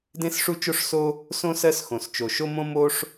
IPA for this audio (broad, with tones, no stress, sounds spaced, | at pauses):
d ẽ˥ s ʂ u˥ t͡ʃ o˥ ʂ s o˥ | s õ˥ s ɜ˥ s x õ˩ s t͡ʃ o˩ ʃ o˥ m õ˥ m o˥ ʂ